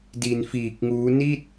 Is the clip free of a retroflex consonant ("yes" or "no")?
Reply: yes